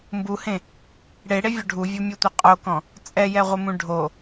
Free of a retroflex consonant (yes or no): no